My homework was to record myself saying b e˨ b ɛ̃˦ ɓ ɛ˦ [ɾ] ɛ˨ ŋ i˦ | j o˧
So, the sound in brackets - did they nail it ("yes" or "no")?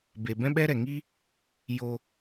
yes